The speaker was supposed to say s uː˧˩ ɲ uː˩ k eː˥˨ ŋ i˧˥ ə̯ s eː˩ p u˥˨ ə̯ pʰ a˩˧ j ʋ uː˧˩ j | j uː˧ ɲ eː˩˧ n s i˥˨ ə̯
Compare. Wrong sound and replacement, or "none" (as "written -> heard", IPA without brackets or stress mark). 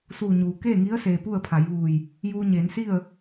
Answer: none